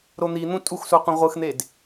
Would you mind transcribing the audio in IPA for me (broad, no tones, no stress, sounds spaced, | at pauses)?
ɾ o n̪ i n̪ ũ tʼ u x s u qʷ ĩ ʁʷ ɯ x n̪ e d